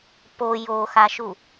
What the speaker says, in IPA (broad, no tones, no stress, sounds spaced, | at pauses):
p o j o x a ʃ u